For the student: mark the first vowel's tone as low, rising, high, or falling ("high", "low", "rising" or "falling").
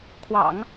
low